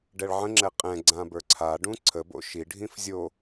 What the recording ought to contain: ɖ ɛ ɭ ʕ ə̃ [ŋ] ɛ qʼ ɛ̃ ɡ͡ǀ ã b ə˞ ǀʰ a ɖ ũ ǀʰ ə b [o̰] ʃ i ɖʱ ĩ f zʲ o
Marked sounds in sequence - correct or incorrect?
incorrect, correct

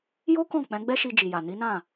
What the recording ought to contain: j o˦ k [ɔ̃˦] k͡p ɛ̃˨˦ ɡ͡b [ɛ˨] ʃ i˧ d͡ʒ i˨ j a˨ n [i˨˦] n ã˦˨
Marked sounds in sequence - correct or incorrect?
incorrect, incorrect, correct

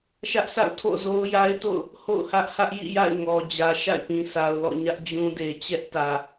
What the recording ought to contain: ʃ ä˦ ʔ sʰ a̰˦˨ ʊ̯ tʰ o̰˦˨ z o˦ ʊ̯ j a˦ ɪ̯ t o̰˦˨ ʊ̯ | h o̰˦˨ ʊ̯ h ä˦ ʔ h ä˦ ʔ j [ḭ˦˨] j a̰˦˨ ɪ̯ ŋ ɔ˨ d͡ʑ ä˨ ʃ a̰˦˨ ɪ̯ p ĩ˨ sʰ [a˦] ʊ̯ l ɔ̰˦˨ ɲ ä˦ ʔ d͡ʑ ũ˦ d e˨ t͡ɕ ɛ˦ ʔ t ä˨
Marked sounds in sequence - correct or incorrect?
correct, incorrect

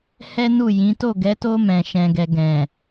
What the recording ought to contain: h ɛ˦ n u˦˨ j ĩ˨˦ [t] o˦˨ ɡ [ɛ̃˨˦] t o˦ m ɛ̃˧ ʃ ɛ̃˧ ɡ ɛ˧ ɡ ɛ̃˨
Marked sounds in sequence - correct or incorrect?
correct, incorrect

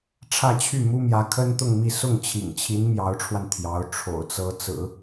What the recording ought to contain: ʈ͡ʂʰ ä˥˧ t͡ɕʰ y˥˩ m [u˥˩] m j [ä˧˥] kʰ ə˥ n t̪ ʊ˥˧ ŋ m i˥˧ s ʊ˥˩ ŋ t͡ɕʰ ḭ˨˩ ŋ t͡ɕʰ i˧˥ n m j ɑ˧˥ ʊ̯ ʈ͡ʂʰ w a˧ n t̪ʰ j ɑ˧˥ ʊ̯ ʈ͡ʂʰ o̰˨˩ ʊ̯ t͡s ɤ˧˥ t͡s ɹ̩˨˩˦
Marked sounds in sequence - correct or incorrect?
incorrect, correct

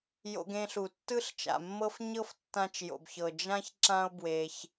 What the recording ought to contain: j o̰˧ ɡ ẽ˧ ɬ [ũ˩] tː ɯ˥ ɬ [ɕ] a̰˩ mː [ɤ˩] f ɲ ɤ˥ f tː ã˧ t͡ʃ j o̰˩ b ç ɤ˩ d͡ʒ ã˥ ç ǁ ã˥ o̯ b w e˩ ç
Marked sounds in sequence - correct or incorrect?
incorrect, incorrect, incorrect

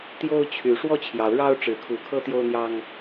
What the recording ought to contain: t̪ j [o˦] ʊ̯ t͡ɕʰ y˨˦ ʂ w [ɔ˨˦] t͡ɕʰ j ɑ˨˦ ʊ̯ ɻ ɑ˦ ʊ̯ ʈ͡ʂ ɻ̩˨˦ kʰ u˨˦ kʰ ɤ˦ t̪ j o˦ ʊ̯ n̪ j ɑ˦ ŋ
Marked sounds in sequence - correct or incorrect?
correct, incorrect

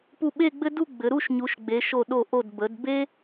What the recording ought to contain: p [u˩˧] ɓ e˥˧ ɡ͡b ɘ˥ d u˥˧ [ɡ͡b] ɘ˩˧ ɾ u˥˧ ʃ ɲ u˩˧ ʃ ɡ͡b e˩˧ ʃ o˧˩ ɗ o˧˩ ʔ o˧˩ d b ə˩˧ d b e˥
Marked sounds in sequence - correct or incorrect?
incorrect, correct

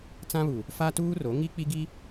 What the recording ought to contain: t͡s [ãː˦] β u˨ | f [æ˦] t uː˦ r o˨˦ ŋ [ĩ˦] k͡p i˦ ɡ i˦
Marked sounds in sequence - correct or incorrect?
incorrect, incorrect, incorrect

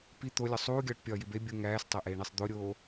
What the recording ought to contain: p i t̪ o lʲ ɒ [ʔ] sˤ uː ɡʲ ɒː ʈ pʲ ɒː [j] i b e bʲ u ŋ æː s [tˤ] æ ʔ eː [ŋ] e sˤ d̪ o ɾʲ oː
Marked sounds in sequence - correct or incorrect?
incorrect, correct, correct, incorrect

